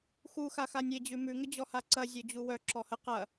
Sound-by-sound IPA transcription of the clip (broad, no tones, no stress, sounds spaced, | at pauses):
x u x a x a nʲ e d͡ʑ ʉ m ʉ ŋ ə d͡ʑ ɔ h a ǀ ɐ zʲ œ d͡ʑ u w œ ǁ ɔ h ə q ɐ